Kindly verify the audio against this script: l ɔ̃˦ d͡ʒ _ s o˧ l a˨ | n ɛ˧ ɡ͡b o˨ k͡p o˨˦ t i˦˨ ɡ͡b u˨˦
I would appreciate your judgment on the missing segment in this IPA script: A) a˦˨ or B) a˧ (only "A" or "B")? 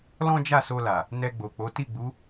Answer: A